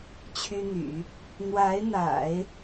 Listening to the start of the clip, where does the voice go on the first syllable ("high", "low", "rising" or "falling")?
high